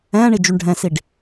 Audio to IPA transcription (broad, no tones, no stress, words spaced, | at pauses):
ɛ̃ːɳid͡ʒyɳ ɖʱɛ̃siɖ